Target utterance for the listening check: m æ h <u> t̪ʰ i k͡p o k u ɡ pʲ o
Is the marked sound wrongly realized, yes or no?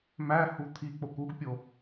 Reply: no